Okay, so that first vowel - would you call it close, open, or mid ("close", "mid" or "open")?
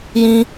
close